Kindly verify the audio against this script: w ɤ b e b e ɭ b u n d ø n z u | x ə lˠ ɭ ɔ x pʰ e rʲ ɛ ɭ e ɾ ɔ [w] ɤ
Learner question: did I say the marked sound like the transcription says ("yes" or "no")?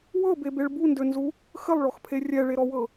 yes